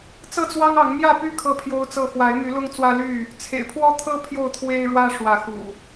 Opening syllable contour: falling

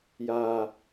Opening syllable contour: low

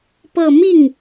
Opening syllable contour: falling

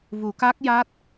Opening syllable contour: low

